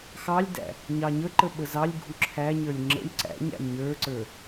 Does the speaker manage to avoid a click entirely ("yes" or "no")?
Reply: no